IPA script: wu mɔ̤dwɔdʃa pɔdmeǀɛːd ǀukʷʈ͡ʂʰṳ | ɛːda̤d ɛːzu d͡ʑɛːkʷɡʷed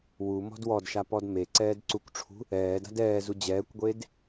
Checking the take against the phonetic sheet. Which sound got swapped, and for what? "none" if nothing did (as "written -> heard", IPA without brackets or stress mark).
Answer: none